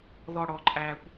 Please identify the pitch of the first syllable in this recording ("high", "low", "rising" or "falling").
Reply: low